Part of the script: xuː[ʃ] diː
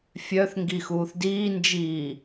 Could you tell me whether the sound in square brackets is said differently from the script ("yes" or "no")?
yes